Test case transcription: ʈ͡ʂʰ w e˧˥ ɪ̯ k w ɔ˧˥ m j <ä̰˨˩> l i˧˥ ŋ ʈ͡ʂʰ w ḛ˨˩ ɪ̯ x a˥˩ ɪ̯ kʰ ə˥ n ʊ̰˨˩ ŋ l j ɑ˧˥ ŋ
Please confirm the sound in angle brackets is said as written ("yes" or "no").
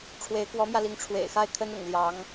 no